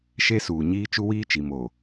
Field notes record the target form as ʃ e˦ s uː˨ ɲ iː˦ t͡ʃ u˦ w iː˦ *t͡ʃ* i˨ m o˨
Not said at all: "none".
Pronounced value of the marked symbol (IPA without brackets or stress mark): t͡ʃ